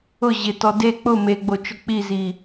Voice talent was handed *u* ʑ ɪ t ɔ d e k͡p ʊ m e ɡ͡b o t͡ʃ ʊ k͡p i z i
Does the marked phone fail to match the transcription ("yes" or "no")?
yes